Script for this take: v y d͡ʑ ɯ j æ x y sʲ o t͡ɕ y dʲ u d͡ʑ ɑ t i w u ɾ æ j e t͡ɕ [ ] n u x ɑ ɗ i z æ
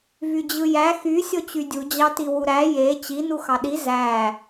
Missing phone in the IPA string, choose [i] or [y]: i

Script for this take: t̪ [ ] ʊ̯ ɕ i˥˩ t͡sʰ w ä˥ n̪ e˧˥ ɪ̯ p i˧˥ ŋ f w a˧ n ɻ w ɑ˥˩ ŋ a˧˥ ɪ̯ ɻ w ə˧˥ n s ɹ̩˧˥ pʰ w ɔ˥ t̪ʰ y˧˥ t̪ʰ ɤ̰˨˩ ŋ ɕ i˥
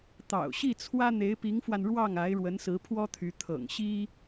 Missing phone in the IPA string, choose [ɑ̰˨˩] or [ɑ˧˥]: ɑ̰˨˩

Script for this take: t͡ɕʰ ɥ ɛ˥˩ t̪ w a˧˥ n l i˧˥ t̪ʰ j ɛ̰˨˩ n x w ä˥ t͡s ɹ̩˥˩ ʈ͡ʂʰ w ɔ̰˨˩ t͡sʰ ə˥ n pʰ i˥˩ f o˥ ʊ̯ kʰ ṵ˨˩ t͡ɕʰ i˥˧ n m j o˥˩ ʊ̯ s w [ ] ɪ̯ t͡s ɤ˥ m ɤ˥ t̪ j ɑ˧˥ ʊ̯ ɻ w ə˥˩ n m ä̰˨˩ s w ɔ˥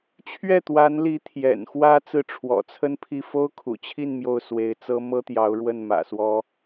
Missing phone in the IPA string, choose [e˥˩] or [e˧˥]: e˧˥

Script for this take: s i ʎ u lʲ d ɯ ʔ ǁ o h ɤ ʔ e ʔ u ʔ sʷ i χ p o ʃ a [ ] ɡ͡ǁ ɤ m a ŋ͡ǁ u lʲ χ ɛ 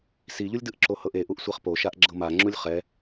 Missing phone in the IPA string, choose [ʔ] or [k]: ʔ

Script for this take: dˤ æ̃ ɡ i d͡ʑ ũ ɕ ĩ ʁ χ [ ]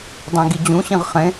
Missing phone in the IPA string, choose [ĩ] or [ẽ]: ẽ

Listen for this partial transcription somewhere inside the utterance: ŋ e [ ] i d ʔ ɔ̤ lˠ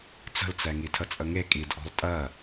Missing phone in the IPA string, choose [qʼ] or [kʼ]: kʼ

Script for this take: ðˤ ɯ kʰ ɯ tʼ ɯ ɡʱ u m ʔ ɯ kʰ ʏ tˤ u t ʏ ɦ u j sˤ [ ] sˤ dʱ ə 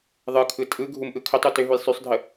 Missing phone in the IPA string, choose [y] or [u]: y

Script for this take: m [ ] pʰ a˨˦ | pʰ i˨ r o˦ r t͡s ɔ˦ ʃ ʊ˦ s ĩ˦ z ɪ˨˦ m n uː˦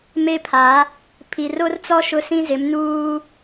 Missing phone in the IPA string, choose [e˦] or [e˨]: e˦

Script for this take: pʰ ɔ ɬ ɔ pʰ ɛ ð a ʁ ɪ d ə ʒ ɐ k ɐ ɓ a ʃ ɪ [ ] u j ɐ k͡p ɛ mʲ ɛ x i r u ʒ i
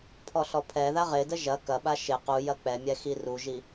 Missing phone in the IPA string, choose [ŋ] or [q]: q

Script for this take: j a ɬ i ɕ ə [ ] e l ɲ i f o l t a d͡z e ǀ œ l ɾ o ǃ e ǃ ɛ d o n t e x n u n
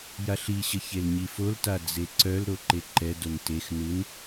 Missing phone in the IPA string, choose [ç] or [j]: ç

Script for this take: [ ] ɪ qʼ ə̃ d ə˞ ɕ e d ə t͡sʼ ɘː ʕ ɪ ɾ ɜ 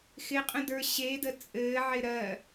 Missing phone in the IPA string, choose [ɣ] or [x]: x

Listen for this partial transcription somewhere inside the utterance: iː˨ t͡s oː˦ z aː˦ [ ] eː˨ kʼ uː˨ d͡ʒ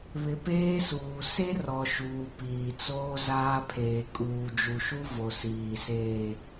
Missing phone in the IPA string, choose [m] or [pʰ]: pʰ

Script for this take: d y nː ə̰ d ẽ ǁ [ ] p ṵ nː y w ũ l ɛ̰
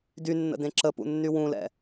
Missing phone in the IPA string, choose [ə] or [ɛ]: ə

